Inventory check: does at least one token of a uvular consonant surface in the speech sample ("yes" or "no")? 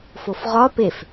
yes